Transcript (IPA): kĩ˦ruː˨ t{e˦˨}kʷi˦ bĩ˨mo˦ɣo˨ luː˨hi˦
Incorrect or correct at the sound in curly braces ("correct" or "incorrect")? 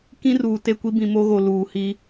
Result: correct